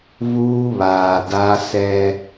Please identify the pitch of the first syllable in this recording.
high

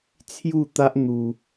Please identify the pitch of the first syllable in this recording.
falling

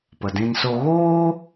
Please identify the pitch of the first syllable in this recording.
low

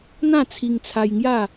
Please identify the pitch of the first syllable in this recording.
falling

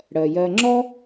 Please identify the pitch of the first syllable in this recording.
low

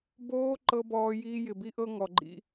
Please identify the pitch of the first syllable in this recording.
high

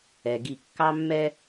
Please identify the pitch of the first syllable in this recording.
low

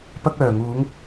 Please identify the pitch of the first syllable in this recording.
high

